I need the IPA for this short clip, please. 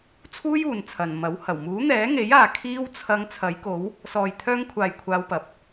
t͡sʰ uː˥ j uː˨ n t͡sʰ ɐ˨ n m ɐ˨˥ w h ɐ˨˩ w m uː˨˥ n̪ ɛː˨˥ ŋ e˨˥ j aː˨ kʰ iː˥ w t͡sʰ ɐ˧ ŋ t͡sʰ ɐ˨˥ j k o˨˥ w | s ɔː˨ j t̪ʰ œː˧ ŋ kʷʰ aː˨ j kʷʰ aː˧ w p ɐ˨ p̚

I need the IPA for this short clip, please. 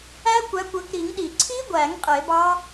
æ˦˥ kʷ æ˨˦ kʷ ø˨˦ k ɾ i˨˩˦ ŋ ɗ i˨˩˦ ǀʰ i˦˥ ɡʷ æ˨˩˦ ŋ qʼ e˨˩˦ b ɑ˦˥

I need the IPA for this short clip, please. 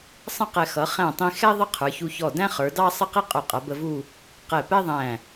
sˤ ə̃˥ q ɛ˧ x ʌ˩˧ χ æ̃˧˩ tˤ ĩ˧ x ɛ˥ ðˤ ə˥ qʰ ə˞˩˧ ç u˧ ç ɔ˧˩ d æ̃˥ χ ə˞˩˧ d ɑ˥ sˤ ə˥˧ q i˥ qʼ ʊ˧˩ qʼ ʌ˩˧ b ə˧ v u˥˧ | q ɛ˧˩ p ɛ˥ ðˤ æ̃˧˩

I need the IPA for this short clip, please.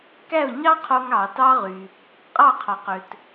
k æ˥˩ ʊ̯ ɲ ɑ˥ qʰ o˧ ŋ ɑː˩ t ɑ˥ ʁ y˩ | qʼ ɑ˥˩ qʰ ɑ˩ q ø˩ t

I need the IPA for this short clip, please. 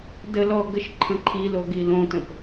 d ə l ɔ ɡ ə ʃ ǃʰ ə̃ ǃʰ i l o ɡ i l õ t ə̃ p

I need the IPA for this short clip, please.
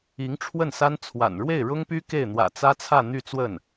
i˧˥ ŋ ʈ͡ʂʰ w ə˥˩ n s a˥ n t͡sʰ w a̰˨˩ n ɻ w e˥˩ ɪ̯ ɻ ʊ˥ ŋ p y˥ k e˥˩ ɪ̯ n̪ w ä̰˨˩ t͡s ä˥ t͡sʰ ä˥˧ n̪ y˥˧ t͡s w ə˥˩ n

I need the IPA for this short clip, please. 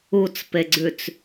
u t͡s p e ɡ͡ǀ ʉ t͡s

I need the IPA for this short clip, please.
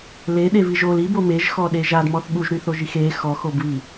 l e ɗ e v i ʒ o l i b o m e ʒ x ɔ ɗ e ʒ a d m ɔ θ ɠ u ʒ ɾ y θ o ʒ i x e x ɔ x o b β i

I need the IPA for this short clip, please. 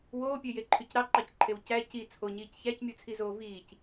w oː pʲ ø j e ǃʰ y c ɾ ɑ ǃ ɑ c ǃʰ e w c æ c i t͡sʰ o ɲ iː c ç æ c mʲ u t͡sʰ i z oː v iː c

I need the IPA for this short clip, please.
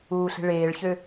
uː ɬ e̤ ɭ eː ɭ ç ø

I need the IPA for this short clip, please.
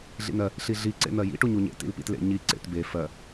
ɮ ḭ n ɜ | ɬ i ɮ i ǀ ḛ n̪ ɜ j ḭ ʈ u ɲ u ɲ ḛ t ḭ l p ḭ t l ḛ ɲ i ǀ ḛ t b e f ɜ

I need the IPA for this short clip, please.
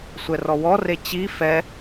sʷ ɛ r ɔ w ɔ r e t͡ɕ i f ɛ

